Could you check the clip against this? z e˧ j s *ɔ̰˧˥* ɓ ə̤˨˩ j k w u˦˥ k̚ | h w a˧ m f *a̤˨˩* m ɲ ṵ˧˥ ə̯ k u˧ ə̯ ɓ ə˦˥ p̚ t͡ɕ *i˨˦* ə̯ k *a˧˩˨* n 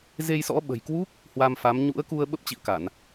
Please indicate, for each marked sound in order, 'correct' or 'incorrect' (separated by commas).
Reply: correct, incorrect, incorrect, correct